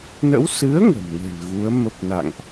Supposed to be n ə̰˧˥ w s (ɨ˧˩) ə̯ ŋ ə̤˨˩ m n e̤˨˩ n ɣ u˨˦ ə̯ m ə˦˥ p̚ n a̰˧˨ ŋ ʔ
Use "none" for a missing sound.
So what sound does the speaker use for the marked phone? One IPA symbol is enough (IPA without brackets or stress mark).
ɨ˨˦